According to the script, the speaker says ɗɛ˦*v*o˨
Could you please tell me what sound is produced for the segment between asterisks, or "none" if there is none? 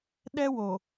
w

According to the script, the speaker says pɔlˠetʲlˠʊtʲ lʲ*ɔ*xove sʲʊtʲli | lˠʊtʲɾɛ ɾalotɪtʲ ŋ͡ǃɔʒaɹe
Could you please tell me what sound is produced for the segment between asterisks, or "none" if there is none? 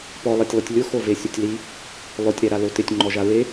ʊ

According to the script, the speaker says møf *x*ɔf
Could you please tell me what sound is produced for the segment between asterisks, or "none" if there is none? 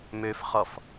χ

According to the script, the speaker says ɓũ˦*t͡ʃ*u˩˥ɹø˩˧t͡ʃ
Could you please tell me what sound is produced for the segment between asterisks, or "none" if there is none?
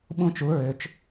t͡ʃ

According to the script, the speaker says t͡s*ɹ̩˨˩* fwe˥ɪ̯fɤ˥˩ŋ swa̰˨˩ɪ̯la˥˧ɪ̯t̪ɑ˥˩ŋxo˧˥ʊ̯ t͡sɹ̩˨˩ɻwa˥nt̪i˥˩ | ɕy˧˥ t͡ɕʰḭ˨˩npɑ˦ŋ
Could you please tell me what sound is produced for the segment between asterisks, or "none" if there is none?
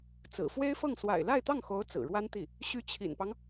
ɹ̩˨˩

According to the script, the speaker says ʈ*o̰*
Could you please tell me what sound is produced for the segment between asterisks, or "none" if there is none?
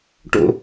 o̰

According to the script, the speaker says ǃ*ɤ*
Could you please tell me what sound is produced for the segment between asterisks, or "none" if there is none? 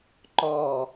ɔ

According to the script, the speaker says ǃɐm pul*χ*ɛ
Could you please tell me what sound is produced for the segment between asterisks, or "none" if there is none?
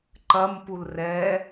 r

